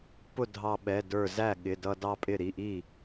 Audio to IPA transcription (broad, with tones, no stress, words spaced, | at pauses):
pʊ˥˩ dʱɑ˧ɓɛ˩˧˩ də˞˧˩zæ˥˩ɠɪ˩˧˩dʌ˧ dɑ˥˧pʼɪ˥˩ ɾi˩˧˩ʔi˥˩